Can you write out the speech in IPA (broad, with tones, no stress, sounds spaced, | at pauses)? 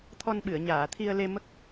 t̪ʰ ɔ˧ n ɓ ɨ˨˩˨ ə̯ ɲ aː˨˩˨ t̪ʰ i˧ ə̯ l e˧ m ə˦˥ k̚